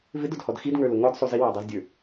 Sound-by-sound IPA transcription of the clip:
v ɪ d ʊ d h ɔ d x i d ŋ ə˞ l ʊ ŋ ɔ d sˤ u z i w æ dˤ ə˞ z dʲ ə˞

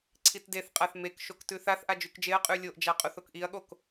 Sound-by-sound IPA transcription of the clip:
ǀʰ i t d e θ qʼ a θ m e k ʃ o k t ʉ θ a θ ʔ a d͡ʒ ʉ k d͡ʒ e ɐ̯ qʼ ʉ lʲ o ʔ d͡ʒ a qʼ o θ o k ʔ i ɐ̯ ɠ o k

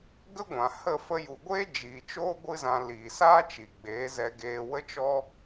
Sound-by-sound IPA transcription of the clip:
ɡ ə˦ ɡʷ ã˨ h ə˦˨ f ə˧ j u˨ ɡʷ eː˦ d͡ʒ iː˨ t͡ʃ oː˦ ɡʷ ɨ˦ z ã˧ l iː˨ s aː˦ t͡ʃ i˨ ɡ͡b eː˨˦ z ɛ˧ ɡ eː˧ w ə˦ t͡ʃ ɔ˦

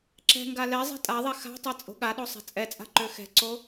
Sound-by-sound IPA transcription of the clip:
ǁ ɛ̤ ŋ ɡ a l ɛ zˤ ɛ̤ tʼ a ðˤ ɛ x a̤ tˤ ɛ t͡sʼ o̤ ɠ a ɗ o sˤ ɛ̤ t͡sʼ ɛ t͡sʼ a̤ ǃ ø x ɛ̤ ǀ o

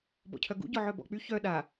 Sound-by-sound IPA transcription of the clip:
b ɔ̰ cʰ œ ɡ ṵ ɟ ɔ ʕ œ b ɔ̰ k͡p y ç œ ɗ a

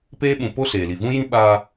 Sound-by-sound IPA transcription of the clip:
p eː˦ ɓ ũ˨ p o˦ s eː˨ l i˨ v ũ˦ j ĩ˦ ɓ a˦

